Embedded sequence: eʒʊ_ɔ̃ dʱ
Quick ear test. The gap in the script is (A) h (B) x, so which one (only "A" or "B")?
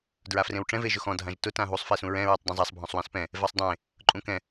B